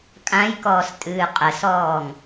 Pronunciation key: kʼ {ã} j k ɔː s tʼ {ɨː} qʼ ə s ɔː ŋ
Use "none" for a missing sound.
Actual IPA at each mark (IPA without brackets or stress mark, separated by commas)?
ã, ɨː